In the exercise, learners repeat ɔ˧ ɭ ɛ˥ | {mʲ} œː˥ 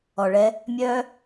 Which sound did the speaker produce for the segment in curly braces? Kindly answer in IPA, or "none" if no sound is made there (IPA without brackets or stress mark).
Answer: mʲ